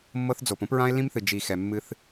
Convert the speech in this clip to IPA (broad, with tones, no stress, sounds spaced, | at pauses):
mː ɤ˦ θ d͡z o˨ p õ˦ p ɹ ã˦ e̯ l ĩ˦ m θ ɨ˨ d͡ʒ i˨ x ɛ˨ mː ɨ˦ θ